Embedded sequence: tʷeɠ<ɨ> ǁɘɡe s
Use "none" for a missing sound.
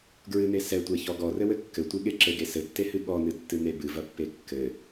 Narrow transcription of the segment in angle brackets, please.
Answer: e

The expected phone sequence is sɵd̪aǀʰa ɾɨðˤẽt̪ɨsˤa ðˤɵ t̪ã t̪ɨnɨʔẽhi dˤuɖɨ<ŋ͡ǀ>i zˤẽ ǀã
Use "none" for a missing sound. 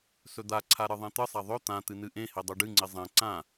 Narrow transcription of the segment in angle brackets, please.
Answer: ŋ͡ǀ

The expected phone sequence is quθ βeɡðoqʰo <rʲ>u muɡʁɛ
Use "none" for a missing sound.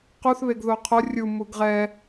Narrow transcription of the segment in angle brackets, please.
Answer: rʲ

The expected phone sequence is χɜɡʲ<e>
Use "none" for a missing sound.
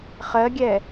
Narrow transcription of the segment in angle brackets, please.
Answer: ɛ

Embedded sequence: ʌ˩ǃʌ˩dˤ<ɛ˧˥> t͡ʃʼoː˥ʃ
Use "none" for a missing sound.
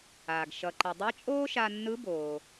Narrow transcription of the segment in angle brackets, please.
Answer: ɛ˧˥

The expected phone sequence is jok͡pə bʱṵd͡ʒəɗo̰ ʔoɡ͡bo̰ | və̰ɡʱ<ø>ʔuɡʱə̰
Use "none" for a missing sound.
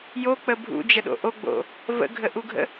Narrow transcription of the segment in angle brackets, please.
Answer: ə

